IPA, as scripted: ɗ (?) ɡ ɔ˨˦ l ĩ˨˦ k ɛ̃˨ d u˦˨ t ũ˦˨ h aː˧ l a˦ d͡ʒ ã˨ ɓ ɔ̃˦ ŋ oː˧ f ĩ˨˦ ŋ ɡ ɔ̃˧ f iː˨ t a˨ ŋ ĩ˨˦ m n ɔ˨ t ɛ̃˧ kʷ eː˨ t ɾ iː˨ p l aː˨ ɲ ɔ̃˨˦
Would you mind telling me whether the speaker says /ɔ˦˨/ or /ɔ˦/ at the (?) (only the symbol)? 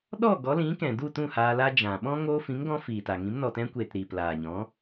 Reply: ɔ˦˨